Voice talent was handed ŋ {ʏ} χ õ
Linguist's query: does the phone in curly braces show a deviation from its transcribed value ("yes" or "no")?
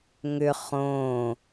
no